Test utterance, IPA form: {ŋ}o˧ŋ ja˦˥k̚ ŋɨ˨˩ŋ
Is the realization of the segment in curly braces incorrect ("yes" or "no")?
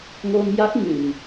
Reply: no